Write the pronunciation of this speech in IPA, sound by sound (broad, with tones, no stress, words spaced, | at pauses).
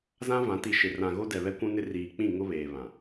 zã˦vã˨˦ ti˨ʃɪ˨ rã˨ ɣo˦dɛ˨ βɛ˦kʷũ˦nɪ˦ riː˨k͡pĩ˦˨ ŋʊ˦βeː˨ βã˨